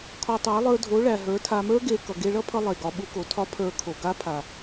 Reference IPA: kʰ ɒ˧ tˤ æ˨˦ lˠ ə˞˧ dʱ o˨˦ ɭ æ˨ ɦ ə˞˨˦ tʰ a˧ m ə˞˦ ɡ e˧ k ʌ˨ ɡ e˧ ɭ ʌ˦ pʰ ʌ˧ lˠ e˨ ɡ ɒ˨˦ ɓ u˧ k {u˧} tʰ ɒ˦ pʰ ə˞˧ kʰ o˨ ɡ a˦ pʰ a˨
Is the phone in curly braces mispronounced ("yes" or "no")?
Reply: yes